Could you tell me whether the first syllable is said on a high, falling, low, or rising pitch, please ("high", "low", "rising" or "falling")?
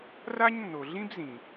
high